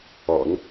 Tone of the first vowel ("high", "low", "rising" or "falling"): low